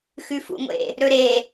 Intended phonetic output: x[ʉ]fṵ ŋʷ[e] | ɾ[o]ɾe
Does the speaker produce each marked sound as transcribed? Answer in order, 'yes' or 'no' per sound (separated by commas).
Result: yes, no, no